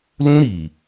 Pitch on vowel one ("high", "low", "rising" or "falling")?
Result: high